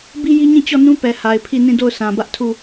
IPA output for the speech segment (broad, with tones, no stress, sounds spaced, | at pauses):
b i˦ j i˦ ɲ ĩ˦˨ t͡ɕ ɔ˦˨ n ũ˦ p ɛ˨ h a˨ ɪ̯ pʰ i˦˨ n ĩ˦˨ d o˦˨ ʊ̯ s ã˨ b ä˦ ʔ tʰ u˦˨